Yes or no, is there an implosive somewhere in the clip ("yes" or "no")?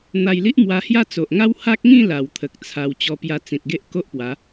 no